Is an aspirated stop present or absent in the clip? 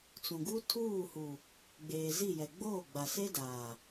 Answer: present